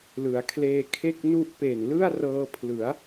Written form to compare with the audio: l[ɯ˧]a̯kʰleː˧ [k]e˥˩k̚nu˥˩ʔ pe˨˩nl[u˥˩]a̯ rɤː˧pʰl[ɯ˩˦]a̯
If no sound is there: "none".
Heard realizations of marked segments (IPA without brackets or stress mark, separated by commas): ɯ˩˦, kʰ, ɯ˥˩, ɯ˩˦